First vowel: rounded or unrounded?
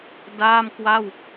unrounded